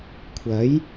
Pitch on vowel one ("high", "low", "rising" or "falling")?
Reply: rising